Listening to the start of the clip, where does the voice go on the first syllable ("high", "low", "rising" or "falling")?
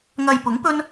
low